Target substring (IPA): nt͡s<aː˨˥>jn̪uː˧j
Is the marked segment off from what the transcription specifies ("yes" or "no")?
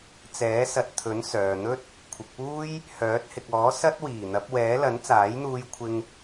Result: no